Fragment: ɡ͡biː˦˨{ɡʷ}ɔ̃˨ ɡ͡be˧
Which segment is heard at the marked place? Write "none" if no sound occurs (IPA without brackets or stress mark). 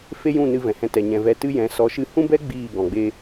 ɡ